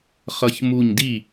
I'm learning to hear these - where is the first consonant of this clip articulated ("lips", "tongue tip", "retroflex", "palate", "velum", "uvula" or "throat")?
uvula